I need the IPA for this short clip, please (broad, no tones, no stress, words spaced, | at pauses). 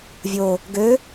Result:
vʲo | ɡø